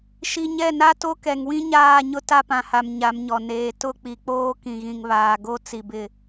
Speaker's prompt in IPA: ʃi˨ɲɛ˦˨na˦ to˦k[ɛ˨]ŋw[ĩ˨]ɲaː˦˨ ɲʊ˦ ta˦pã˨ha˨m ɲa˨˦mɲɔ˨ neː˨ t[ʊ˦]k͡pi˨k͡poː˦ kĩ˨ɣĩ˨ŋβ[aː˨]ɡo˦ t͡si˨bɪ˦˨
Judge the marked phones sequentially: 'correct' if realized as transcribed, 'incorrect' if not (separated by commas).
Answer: correct, incorrect, incorrect, correct